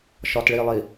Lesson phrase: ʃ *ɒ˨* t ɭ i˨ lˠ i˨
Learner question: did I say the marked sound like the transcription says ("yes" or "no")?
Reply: yes